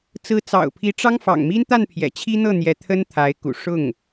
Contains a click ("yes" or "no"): no